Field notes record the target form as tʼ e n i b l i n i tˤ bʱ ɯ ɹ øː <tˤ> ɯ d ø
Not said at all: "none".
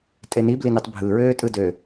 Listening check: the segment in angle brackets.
tʼ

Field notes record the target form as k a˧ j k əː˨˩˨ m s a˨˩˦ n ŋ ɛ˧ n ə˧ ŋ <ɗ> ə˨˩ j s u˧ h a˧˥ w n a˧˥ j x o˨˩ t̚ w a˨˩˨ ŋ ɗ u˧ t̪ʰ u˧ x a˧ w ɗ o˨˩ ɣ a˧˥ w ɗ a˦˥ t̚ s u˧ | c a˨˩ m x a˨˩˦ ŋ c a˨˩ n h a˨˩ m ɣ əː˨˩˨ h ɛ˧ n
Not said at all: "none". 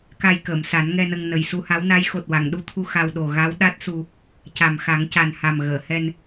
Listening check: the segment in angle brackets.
n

